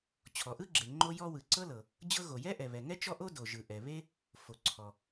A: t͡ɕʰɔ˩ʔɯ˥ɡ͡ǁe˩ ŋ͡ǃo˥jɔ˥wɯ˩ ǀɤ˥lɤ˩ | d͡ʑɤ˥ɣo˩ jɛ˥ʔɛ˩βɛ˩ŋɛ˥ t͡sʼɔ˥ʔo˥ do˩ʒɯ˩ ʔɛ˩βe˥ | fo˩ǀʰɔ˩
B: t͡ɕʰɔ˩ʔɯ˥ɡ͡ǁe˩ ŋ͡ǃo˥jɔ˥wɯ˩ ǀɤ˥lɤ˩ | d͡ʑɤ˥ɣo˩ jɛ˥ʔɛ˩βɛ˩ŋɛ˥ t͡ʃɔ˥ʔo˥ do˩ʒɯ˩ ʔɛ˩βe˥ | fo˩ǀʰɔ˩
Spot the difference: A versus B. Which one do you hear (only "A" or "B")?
B